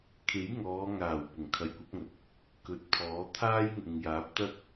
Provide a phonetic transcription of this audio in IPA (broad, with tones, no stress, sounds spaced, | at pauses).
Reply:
kʰ e˨˥ j ŋ ɔː˨˧ ŋ aː˨˩ w p ʊ˨˩ ŋ kʰ ɐ˨˧ j kʷ ɐ˨˥ p̚ ŋ ɐ˨ t̚ | k ɵ˧ t̚ pʰ ɔː˨˥ t̪ʰ aː˥ j ŋ ʊ˨ ŋ j aː˨˥ p̚ t̪ ɐ˥ t̚